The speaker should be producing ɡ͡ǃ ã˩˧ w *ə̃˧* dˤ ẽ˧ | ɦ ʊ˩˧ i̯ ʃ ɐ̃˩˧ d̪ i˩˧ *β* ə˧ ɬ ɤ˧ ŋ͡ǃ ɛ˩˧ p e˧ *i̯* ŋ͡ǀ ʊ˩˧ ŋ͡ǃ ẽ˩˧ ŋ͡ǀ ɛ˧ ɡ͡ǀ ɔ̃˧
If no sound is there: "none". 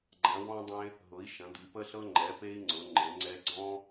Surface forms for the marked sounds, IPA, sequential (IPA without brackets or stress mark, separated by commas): ɔ̃˧, p, i̯